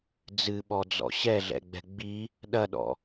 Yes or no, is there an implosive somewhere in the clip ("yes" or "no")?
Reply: yes